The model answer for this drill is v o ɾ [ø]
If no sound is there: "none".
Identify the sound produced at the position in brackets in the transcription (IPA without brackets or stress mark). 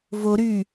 y